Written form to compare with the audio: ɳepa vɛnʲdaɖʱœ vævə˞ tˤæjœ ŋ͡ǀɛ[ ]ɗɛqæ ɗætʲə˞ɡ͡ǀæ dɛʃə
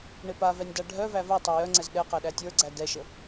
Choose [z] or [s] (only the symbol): z